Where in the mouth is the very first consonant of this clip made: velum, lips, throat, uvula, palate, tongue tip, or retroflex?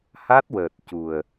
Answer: throat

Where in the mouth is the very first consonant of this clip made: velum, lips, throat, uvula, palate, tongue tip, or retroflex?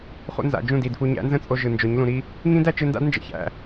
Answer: uvula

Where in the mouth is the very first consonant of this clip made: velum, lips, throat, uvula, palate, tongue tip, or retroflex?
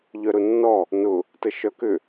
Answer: palate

